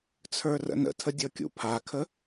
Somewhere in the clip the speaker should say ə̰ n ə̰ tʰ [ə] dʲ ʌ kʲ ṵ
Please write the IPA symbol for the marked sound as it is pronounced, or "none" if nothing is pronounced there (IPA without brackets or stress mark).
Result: ə